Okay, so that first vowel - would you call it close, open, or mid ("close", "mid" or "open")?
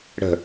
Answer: mid